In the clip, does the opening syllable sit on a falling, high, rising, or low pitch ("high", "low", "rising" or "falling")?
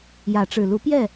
rising